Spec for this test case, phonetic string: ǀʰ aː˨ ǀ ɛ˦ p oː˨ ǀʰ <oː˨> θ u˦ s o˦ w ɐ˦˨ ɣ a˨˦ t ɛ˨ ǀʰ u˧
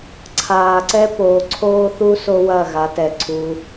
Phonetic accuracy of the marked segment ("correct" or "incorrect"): incorrect